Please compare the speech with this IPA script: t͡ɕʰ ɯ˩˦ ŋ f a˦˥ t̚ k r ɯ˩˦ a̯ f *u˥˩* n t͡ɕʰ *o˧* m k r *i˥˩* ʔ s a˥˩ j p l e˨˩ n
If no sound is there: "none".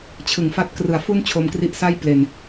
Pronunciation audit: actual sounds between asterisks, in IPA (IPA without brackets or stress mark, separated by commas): u˥˩, o˧, i˦˥